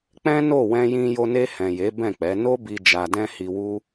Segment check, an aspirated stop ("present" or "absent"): absent